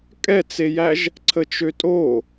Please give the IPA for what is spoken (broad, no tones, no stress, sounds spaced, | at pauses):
kʼ ɛ t͡s e j æ ʒ | ǀʰ ə t͡ʃ ø tʼ o